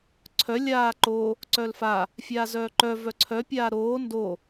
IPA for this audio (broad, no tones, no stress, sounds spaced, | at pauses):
ǀʰ œ lʲ aː ǃ o | ǀ œ l f a | fʲ aː z œː ǃ œ v œ ǀʰ œ pʲ aː ɾ oː n d o